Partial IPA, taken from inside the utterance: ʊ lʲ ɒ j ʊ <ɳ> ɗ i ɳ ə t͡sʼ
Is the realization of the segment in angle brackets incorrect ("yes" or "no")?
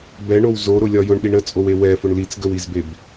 no